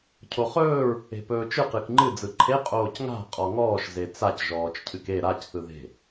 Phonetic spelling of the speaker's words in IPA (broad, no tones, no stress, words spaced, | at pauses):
cʰoχɵːɹ | e̤pɵːt͡ʃɯ qɨkŋ͡ǃɨ d͡zɯǃʰe qʼoːcŋa̤ qʼɔŋɔːʃ zet͡sac ʒɔːt͡ʃcʰɨke ɾac θɯðe̤